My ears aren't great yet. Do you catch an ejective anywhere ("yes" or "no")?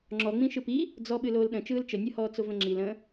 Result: no